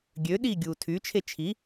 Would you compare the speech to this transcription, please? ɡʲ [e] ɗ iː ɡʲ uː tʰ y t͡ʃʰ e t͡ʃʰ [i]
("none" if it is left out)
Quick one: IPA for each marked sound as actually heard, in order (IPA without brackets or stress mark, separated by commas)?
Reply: ø, i